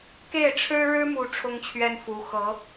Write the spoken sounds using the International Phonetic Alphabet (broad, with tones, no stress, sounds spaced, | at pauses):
k e˥˩ ɪ̯ ʈ͡ʂʰ ɻ̩˥ ɻ ɻ̩˥ m u˧˥ ʈ͡ʂʰ ʊ˥ ŋ t͡ɕʰ ɥ ɛ˥ n f u˧˥ x ɤ˧˥